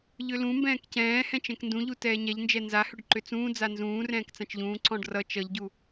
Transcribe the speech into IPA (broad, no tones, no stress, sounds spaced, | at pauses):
ʎ ʏ l ũ m b ɛ̃ː k c ɛ̃ː h ɛ̃ t͡ʃ ɛ̃ k n d ũ ʎ u t ɛː ɲ ɛ ʎ n d͡ʒ ɛ n z a h ʏ ɖ ǃ ʏ t͡s ũː d͡z a n z ũː r ɛ̃ː k t͡s ã t͡ʃ ʎ ũː ǀ ɔ̃ ɖ r ʌ t͡ʃ ʌ ʎ ɟ u